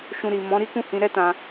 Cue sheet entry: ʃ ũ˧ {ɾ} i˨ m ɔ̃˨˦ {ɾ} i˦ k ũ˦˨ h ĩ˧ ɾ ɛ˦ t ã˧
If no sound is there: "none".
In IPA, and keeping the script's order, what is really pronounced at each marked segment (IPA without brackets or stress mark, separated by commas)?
ɾ, ɾ